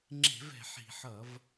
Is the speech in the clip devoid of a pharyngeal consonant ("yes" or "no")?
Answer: no